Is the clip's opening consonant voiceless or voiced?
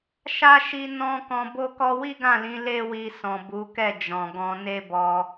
voiceless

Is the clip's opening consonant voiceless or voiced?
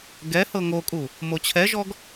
voiced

